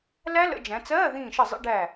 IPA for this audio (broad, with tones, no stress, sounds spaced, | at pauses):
l æ˦˥ l ə̰˩˧ d͡ʒ æ̃˩˧ t͡s ɜː˧˥˧ ð ĩː˧˩ ʃ ə˧˩ zˤ ə̰˧˥˧ ɖ æ˧˩